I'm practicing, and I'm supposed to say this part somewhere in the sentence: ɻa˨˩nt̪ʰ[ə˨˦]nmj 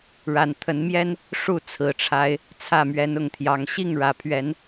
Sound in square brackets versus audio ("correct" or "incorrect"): correct